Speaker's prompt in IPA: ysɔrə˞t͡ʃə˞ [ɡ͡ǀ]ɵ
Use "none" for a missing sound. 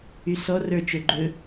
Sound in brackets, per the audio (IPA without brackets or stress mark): ɡ͡ǃ